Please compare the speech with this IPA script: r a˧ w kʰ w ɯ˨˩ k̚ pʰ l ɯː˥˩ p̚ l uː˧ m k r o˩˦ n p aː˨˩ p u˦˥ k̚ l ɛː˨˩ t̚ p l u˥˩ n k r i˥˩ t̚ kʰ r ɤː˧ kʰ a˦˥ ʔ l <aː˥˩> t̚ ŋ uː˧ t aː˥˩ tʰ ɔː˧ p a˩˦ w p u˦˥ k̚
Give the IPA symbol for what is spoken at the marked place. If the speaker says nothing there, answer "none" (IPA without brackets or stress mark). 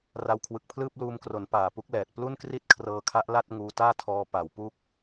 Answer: a˥˩